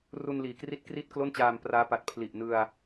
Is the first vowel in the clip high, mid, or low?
high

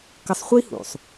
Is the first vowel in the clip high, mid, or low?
mid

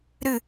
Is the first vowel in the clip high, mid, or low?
high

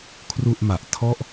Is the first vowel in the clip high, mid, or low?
high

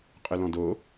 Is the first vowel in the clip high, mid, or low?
mid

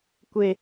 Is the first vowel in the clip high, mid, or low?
mid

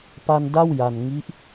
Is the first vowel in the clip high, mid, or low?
low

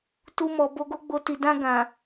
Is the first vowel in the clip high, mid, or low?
high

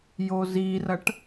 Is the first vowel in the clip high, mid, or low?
mid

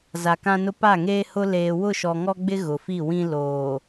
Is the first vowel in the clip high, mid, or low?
low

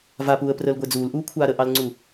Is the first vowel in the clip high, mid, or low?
low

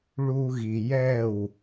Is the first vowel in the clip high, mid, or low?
high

